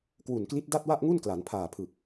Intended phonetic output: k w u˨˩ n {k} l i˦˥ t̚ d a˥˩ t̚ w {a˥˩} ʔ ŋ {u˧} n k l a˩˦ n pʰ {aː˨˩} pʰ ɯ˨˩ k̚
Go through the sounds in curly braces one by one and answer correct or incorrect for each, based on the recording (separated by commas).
correct, correct, incorrect, correct